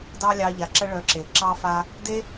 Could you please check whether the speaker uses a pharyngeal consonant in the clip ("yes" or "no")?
no